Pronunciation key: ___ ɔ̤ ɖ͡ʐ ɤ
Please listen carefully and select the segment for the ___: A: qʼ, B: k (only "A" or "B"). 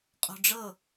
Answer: A